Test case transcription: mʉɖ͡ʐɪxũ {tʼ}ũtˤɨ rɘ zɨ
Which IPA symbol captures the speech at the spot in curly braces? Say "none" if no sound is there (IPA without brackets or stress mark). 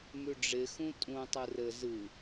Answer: tʼ